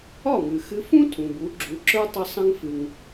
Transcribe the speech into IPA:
ɒ˥˩ ŋ ɨ˩ x ɨ˧ f ũ˥ tʰ ũ˩ b u˩˥ ɡ͡ǁ u˩˥ ǁ ə˞˥ tˤ ə˧ sˤ ə̃˧ ŋ f ɨ˩ ŋ

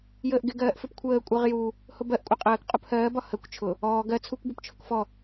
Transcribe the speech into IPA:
j əː ʔ ɡ ɪ ɡ ɜː ʔ f ɪ p kʷʰ əː kʷʼ ɜ ʁ j u | h ʊ b ɜ ʔ kʷʼ ɪ qʼ əː k qʼ u p h ɜː b ɒ h ə kʷ t͡ʃʰ ʊ | ɔː ɡ ɜ t͡sʰ u kʷ b ɔ p t͡ʃʰ ʊ k f ɔ

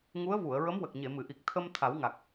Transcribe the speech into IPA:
ŋ u˧˥ ə̯ v u˨˩˨ ə̯ ɹ ə˧˥ m w ə˨˩ k̚ ɲ e˨˩˨ m ɨ˨˩˨ ʔ i˨˩ k̚ t̪ʰ ə˧ m t̪ʰ a˨˩˦ w ŋ a˨˩ k̚

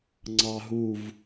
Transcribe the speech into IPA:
ŋ͡ǀ ɑ ɦ u v

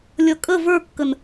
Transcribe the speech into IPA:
lʲ ʌ kʼ ə v ə˞ kː ə n

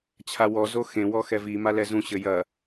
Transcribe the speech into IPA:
t͡ɕʰ a w ɔ z o x ẽ w ɔ x ɛ v i m a l ɛ z ũ ɕ ɘ j ɐ

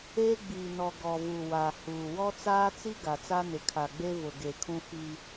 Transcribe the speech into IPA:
eː˦ ɡ͡b iː˨ n ɔ˨ ɡ ɔ˨ v u˨ w a˨ h uː˨ w ɔ˦ t͡s aː˦ t͡s i˦ ɡ a˨ t͡s a˦ n ɪ˨ kʰ a˨ ɡ͡b e˦ v ʊ˨ ɡ e˨ kʰ ũ˦ f i˦

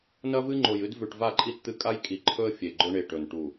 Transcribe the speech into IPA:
n ɐ˦ v ɨ˦ ŋ͡ǃ o˨ j ɨ˦ d v ʉ˨ ʈ v a˦˨ ǃʼ i˦ t t̪ ɨ˦ kʼ a˦ j kʼ i˨ ǃʰ ɵ˦ ə̯ fʲ e˨ ɡ͡ǃ ɵ˦ ɳ e˨ ʈ ɵ˨ n ʈ u˨

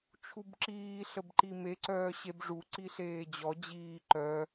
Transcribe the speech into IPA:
t͡ʃʰ u b ǁ iː ɬ ə b ǃ i m e ǀ œː ɕ e b ʐ u ǀ i ɬ eː d͡ʑ ɔ d͡ʑ iː ǃ œ

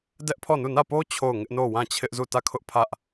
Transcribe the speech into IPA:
d ɛ˦ ʔ pʰ ɔ˦˨ n u˦˨ n ä˦˨ p o˦ t͡ɕʰ o˦˨ ʊ̯ ŋ ɪ˦ ʔ n o˦˨ w ã˦˨ t͡ɕʰ ɪ˦ ʔ z u˦˨ t ä˦˨ kʰ ʊ˦ ʔ pʰ ä˦ ʔ

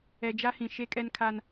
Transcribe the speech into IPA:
ɛ˨ d͡ʒ a˦ h ĩ˨ ʃ e˦ kʼ ɛ˦ n kʰ a˦ n

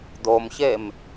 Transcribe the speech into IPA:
d̪ o m ç e m

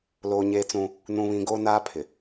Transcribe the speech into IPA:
l oː˦ ɲ eː˦ t͡s ũ˦ | n ũ˦ β ĩ˦ ɡ oː˦ n aː˦ pʰ ɪ˨

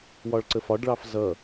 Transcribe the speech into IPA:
w ɒ ɭ ǀ ə f ɒ ɖ ɭ ɑ f z ʌ

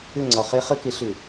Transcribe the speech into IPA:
ʏ˦˨ ŋ͡ǀ ɒ˨ χ e˦ χ ɘ˦ k e˨˦ ɬ ʏ˨

